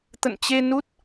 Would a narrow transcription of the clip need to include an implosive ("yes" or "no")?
no